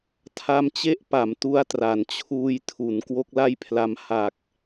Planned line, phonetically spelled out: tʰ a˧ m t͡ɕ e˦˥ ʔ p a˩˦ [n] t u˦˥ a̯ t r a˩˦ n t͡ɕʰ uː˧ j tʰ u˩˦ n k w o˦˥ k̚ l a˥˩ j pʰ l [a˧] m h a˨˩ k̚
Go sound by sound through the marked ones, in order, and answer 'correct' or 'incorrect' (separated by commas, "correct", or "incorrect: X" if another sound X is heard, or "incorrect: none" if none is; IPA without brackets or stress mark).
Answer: incorrect: m, correct